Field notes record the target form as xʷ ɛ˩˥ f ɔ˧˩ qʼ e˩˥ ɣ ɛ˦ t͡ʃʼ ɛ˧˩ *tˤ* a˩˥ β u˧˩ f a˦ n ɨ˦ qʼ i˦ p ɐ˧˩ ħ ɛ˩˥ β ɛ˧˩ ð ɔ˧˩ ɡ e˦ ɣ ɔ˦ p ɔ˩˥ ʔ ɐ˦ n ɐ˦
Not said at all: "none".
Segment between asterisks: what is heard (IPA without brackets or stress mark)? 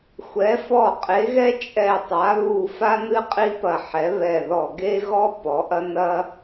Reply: tˤ